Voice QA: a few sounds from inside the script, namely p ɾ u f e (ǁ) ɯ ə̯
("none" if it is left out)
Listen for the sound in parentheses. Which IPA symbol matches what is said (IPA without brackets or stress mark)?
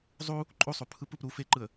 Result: ǃ